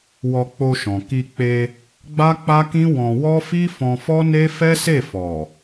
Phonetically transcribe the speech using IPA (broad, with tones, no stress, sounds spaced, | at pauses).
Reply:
w ɔ˧ k͡p o˧ ʃ ɔ̃˨ k i˧ k͡p e˧ | ɡ͡b a˦ k͡p a˦ k ĩ˦ w ɔ̃˧ w ɔ˦ f i˦ f ɔ̃˧ f ɔ˦ n e˦ f ɛ˦ s e˦˨ f ɔ˨